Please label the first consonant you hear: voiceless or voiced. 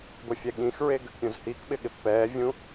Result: voiced